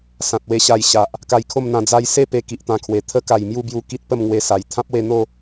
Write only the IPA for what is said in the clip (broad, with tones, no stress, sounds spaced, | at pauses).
s ã˨ t̚ w e˧ ɕ a˧ j ɕ a˨ ʔ | k a˧ j kʰ o˥˧ m n̪ ã˧ d͡z a˧ j s e˥˧ p e˦ k i˨ ʔ t̪ ã˧ kʰ w e˨˩ t̪ʰ ə˦ k a˨˩ j m j u˥˧ b j u˧ k i˦ t̚ p ə˥˧ m ŋ w e˧ s a˨˩ j t̪ʰ ã˦ p̚ w e˧ n̪ o˥˧